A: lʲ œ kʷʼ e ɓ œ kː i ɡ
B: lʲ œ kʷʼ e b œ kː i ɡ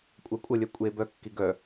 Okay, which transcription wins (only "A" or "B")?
B